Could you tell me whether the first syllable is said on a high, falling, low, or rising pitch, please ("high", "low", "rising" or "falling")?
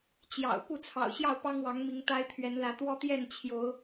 low